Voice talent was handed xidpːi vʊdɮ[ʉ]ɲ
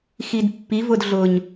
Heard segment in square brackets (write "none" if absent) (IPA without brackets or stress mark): ʊ